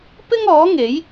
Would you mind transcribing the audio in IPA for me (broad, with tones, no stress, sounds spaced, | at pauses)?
p ɪ˥ ŋ ɔː˨˥ ŋ e˨˥ j